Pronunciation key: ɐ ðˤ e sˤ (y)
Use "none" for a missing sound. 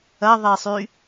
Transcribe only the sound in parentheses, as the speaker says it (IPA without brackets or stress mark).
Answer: y